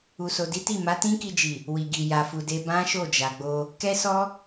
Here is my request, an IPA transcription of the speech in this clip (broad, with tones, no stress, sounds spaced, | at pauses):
u˨ s o˨ d i˨˦ t i˦˨ m a˨˦ t ĩ˦ k i˧ d͡ʒ i˨ | w i˨ ɡ i˨ j a˨ f u˨ d e˧ b ã˦ ʃ o˦˨ d͡ʒ a˨ ɡ͡b o˧ | k ɛ˦ s ɔ˦